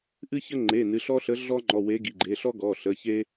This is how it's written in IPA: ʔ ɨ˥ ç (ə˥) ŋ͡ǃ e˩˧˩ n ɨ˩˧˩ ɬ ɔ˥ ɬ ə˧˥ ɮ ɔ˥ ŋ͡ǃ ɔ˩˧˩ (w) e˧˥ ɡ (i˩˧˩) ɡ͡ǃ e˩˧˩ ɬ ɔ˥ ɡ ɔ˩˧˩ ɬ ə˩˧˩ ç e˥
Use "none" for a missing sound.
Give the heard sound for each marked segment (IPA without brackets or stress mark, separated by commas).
ə˥, w, i˩˧˩